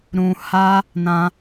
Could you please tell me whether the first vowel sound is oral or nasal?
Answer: nasal